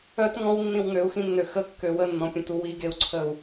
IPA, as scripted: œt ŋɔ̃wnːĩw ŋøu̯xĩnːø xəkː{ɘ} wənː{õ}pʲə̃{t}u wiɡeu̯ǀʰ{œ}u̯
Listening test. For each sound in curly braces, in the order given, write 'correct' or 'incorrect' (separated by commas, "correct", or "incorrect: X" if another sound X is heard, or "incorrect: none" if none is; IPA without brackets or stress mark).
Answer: incorrect: ø, incorrect: ɔ̃, correct, incorrect: ə